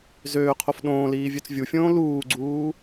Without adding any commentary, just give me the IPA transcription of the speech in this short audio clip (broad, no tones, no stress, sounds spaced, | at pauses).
z øː qʰ o f ɗ õː l iː vʲ ø t͡s vʲ u fʲ õː l uː ɡ͡ǀ uː